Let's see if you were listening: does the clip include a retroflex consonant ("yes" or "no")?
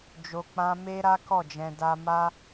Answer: no